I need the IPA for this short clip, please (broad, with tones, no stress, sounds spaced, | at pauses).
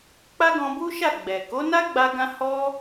k͡p a˦ ɡ ɔ̃˧ b u˦ ʃ a˦˨ ɡ͡b ɛ˨ k o˨˦ n a˦ ɡ͡b a˧ ɡ ã˧ h ɔ˦